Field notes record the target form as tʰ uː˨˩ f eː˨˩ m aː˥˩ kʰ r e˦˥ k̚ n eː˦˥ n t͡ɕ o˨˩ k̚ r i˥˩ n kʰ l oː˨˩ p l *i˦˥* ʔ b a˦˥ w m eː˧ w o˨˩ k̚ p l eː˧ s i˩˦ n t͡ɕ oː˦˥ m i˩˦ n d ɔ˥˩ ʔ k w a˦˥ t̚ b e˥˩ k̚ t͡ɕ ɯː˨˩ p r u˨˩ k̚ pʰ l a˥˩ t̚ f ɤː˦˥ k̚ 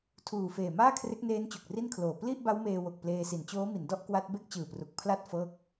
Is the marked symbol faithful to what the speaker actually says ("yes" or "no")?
no